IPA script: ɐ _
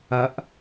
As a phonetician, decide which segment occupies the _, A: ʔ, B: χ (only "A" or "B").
A